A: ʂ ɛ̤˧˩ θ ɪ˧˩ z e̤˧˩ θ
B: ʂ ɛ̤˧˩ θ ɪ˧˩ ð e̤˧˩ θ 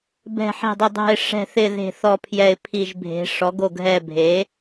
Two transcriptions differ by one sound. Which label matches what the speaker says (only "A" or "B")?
B